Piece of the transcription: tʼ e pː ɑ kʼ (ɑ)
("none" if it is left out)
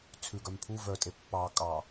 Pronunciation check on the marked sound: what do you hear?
ɑ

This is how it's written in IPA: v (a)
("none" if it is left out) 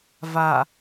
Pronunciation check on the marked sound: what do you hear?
a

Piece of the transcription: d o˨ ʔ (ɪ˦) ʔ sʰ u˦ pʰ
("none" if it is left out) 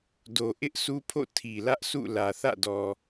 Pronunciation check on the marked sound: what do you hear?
ɪ˦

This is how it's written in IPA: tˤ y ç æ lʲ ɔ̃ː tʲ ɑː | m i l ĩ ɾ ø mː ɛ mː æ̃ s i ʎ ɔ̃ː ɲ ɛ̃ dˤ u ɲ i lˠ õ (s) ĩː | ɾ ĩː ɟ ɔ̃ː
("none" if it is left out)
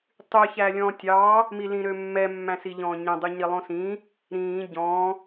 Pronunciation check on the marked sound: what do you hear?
s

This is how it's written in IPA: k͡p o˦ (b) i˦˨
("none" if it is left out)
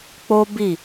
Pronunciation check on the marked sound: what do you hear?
b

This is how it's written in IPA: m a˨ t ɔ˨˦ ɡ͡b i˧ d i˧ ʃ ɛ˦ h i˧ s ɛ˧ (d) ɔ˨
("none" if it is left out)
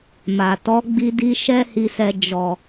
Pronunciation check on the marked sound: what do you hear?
d͡ʒ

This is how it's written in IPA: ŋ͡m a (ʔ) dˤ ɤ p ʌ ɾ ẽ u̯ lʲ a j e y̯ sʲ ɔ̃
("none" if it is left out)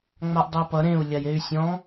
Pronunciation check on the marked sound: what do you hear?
ʔ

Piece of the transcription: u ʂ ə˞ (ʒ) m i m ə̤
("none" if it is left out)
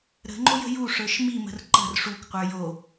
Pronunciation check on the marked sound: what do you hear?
ʃ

